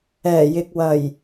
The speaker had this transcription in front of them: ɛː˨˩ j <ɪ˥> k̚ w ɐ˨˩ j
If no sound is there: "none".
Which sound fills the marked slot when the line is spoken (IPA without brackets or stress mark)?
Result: ɪ˨